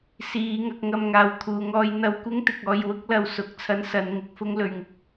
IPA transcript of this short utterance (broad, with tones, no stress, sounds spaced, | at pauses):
s iː˨˧ ŋ ɐ˧ k̚ ŋ ɐ˧ m ŋ aː˨ w t̪ʰ uː˨ ŋ ɔː˧ j n̪ ɐ˧ w kʷ ɪ˥ ŋ t̪ ɪ˨ k̚ ɔː˧ j w ʊ˥ k̚ l ɐ˧ w s ʊ˨˥ k̚ t͡sʰ ɐ˥ n s ɐ˨˧ n ŋ ɪ˨˥ k̚ f ʊ˥ ŋ l ɵ˨ ɥ ŋ ɪ˧ k̚